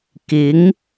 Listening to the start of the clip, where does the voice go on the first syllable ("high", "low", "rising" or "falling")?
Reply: rising